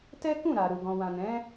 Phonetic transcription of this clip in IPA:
t ɛ˦ k ũ˦˨ ɾ a˨ ɾ u˨ ɡ ɔ̃˨ w ã˨ n ɛ̃˨˦

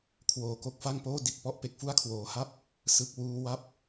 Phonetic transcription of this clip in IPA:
kʰ w oː˩˦ k o˨˩ k̚ f a˥˩ ŋ p oː˥˩ d i˨˩ t̚ p ɔ˦˥ ʔ p e˨˩ k̚ f u˥˩ a̯ kʰ w oː˩˦ h a˥˩ p̚ | s ɯ˨˩ k̚ w uː˦˥ w a˥˩ p̚

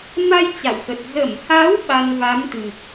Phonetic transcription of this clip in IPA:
m a˧ j t͡ɕ a̰˧˨ w x ə˨˩ t̚ z ə˧˩ m h a˨˦ w ɓ a˧ n v a˨˦ m t̪ ɨ˨˩ k̚

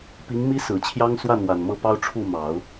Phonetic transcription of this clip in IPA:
p i˧˥ ŋ m i˥ s ɹ̩˨˩ t͡ɕʰ j ɑ˥ ŋ s w a˥˩ n w a˨˩ n m ɤ˥˩ p ɑ˥ ʊ̯ ʈ͡ʂʰ u˥˩ m ɑ˨˩˦ ʊ̯

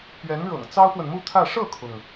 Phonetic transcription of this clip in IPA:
p ɥ ɛ˧˥ n ɻ ɤ̰˨˩ ŋ t͡s ɑ˥ ʊ̯ p w ə˨ n m u˥˧ t̪ʰ ä˥˧ ʂ ɤ˥˩ kʰ ʊ˩ ŋ

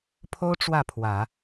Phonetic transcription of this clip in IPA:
pʰ o˥ ʊ̯ ʈ͡ʂ w ä˥˩ pʰ w ä˨˩˦

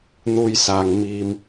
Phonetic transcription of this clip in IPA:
n̪ uː˥ j s aː˧ ŋ m iː˧ m

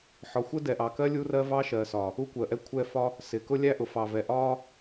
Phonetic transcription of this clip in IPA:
ħ ɒ˨ xʷ ə˦ d ɛ˨ ʔ ɑ˨ k ɜ˦ lʲ u˦ r ɜ˦ v ɑ˦ ʃ ɜ˨ s ɒ˨ | u˦ kʷ ɜ˨ ʔ ɛ˦ kʷʰ ɛ˦˨ f ɒ˦ | s ɪ˨˦ k ʊ˦ lʲ æ˦ ʔ ʊ˨ f ɑ˨ v ɛ˨ ʔ ɒ˦

